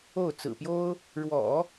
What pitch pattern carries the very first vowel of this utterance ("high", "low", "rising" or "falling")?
falling